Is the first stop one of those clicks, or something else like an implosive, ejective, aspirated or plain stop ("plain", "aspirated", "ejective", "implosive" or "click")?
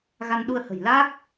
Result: implosive